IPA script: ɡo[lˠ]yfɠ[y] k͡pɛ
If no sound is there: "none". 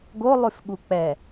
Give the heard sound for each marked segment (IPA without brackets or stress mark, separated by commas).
lˠ, u